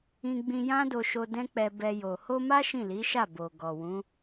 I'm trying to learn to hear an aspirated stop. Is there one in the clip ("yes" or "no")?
no